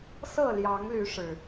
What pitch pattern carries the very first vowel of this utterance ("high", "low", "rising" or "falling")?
falling